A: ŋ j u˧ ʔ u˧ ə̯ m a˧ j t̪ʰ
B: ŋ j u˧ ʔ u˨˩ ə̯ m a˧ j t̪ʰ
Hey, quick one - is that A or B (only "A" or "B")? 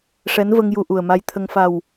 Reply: B